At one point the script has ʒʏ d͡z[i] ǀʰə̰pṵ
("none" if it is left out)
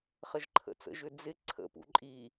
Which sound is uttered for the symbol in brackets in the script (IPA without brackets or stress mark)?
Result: ɪ